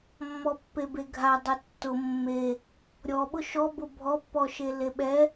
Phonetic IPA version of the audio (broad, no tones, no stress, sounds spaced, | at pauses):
mː ɔ pː e b e ɡʱ a dˤ ʊ tː ʊ mː e | ɾʲ ɔ ɓ ʊ ʃ ɔ b ʊ bʱ ɔ pː ɔ ʃ e l e ɓ ɛ